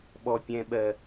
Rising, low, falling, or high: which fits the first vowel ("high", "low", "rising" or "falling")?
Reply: high